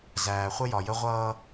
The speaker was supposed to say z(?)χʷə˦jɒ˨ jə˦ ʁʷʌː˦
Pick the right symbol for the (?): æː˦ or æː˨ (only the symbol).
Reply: æː˨